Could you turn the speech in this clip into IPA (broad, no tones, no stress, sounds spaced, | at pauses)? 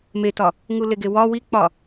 m e t ɒ | ŋ u l e ɡ e w ɒ w i k͡p ɒ